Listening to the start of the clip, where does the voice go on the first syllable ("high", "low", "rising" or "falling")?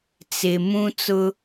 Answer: low